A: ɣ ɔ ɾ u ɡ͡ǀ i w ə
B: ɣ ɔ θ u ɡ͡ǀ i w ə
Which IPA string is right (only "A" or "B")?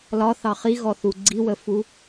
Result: B